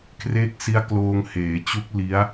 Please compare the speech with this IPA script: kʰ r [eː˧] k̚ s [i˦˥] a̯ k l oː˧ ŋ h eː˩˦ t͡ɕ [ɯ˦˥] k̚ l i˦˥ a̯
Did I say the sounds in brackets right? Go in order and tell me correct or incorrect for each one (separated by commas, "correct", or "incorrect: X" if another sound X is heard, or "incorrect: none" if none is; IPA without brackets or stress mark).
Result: incorrect: eː˦˥, correct, incorrect: u˦˥